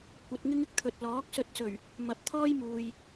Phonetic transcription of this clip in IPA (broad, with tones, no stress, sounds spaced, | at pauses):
kʷ ɐ˨˥ t̚ ŋ ɪ˥ ŋ ɪ˨ k̚ t̪ʰ ɵ˨ t̚ l ɔː˨˥ k̚ s ɵ˧ t̚ s ɵ˨˩ ɥ | m ɐ˨˥ p̚ t̪ʰ ɔː˥ j m uː˨ j